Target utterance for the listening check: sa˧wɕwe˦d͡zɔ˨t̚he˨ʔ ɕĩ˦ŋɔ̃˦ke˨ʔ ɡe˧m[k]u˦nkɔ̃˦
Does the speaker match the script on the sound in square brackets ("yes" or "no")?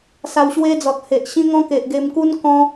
yes